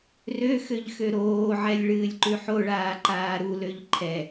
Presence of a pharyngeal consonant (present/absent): present